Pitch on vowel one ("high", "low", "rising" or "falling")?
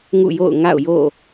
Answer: falling